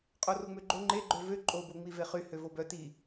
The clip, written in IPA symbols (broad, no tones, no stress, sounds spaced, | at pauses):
qʼ o r o ŋ͡m ø ɡ͡ǃ o ŋ͡ǃ e ɡ͡ǃ ø v ø ǃʼ o b o ŋ͡m i v e χ y h ø v o b œ t i